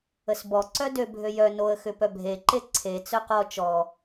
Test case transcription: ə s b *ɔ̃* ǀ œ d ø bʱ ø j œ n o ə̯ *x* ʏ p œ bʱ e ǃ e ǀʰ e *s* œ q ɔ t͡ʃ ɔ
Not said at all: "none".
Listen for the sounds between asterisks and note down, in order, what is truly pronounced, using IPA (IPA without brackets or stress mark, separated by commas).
ɔ, x, t͡s